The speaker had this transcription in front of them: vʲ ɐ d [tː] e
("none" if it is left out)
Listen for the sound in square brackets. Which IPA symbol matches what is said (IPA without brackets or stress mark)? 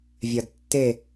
tː